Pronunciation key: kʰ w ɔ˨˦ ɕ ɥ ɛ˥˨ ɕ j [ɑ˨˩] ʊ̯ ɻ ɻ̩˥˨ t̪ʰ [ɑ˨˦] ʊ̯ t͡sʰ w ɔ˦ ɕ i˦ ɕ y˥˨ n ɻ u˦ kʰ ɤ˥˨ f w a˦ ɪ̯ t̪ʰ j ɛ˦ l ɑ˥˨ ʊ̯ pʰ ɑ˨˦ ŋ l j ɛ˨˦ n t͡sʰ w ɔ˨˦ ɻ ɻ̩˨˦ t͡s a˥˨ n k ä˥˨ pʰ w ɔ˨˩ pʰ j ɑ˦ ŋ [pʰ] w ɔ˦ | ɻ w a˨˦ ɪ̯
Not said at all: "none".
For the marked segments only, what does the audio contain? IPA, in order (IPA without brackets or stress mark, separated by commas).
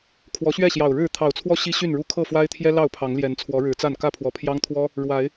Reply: ɑ˨˩, ɑ˨˩, t̪ʰ